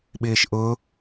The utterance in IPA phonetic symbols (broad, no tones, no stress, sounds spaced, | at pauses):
ɓ ɪː ʃ ʔ ʊ